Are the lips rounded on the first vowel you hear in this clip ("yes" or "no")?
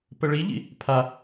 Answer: no